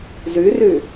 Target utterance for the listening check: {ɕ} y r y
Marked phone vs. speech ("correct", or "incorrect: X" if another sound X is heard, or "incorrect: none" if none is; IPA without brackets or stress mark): incorrect: z